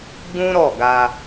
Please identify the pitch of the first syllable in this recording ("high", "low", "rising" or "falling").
high